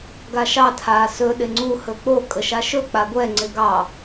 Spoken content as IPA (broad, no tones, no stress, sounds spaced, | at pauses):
ɡ a ʃ ɑ tʰ aː s ɵ ɗ ɪ ŋ͡ǀ u h ɵ k͡p o kʼ ə ʃ a ʃ ɵ k͡p a ɡʷ ɛ ŋ͡ǀ ɪ ɡ ɑ